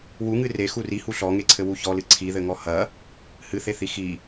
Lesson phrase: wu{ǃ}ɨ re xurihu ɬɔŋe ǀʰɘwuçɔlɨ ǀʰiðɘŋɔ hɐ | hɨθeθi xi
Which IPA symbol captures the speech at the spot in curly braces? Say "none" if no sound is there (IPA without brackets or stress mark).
ŋ